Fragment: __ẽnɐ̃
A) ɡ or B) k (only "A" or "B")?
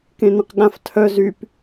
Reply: B